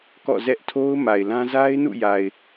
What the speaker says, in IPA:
k ɔ̰˦˨ z ɛ˦ ʔ tʰ o˦ ʊ̯ m a˨ ɪ̯ l ã˦ z a˦ ɪ̯ n ṵ˦˨ j a˨ ɪ̯

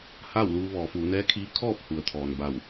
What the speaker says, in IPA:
h aː˥˨ w l uː˧ ʋ ɔː˩˧ f uː˩˧ n ɛː˧˥ kʰ iː˧˥ kʰ ɔː˥˨ p̚ h u˩ ə̯ t̪ʰ ɔː˩ n b a˧˩ w

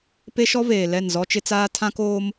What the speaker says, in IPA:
p e˦ ʃ ɔ˦ v eː˨ l ɛ˦˨ n z ɔ˦ t͡ʃ ɪ˦ t͡s aː˦ tʰ ã˦ k oː˦ m

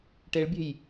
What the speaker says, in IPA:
ʈ e ɭ bʲ e̤ j

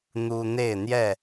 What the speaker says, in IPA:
n̪ u˦ n̪ e˥˨ ɪ̯ n̪ j ɛ˥˨

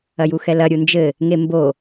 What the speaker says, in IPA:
ɐ j u x ɛ l ɐ ɾʲ u n d͡ʒ ɘ | ŋ e m b o

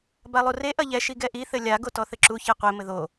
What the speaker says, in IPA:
b a lˠ u r e ʔ ɐ ʎ ɛ ʃ i ɡ ɛ ʔ i θ ɘ lʲ a ɡ o t ɔ θ ɘ ǁ u ç e qʷ e m ɘ ð o

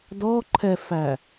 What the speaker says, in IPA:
d ɔ ǃʰ ɛ f æ

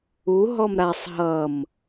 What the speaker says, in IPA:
u ɦ ɔ m ɾ a sˤ ɦ ʌ m

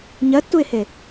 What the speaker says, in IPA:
ɲ ɜ tː u ɪ̯ h e

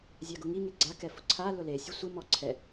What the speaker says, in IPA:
zʲ a ɡ ʊ ŋ i ŋ e ɡ͡ǀ a k ɛ f ʊ ǀʰ a l ʊ l e sʲ ʊ sʷ ɪ m ɔ ǀʰ ɛ

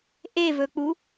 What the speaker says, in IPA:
ʔ e v ɵ k͡p u

